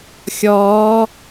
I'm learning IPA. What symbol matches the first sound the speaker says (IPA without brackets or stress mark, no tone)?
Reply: xʲ